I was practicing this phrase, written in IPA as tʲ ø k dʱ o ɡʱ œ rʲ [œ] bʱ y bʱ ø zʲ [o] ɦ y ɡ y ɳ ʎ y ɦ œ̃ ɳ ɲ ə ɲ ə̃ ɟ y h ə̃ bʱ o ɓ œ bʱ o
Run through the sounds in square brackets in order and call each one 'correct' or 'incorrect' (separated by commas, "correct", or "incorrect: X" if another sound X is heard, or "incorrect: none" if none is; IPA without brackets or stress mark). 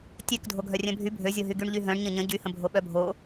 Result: incorrect: œ̃, correct